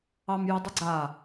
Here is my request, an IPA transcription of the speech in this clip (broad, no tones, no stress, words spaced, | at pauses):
ɑmjɘdˤəɡ͡ǀa